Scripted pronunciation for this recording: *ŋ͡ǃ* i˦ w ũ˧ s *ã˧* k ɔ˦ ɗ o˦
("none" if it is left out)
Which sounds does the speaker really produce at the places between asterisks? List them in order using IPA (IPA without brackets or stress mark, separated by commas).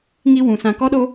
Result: ŋ, ã˧